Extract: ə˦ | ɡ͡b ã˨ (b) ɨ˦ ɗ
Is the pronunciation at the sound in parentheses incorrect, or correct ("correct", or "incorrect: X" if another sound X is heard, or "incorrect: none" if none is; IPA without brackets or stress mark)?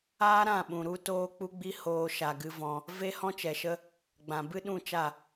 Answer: correct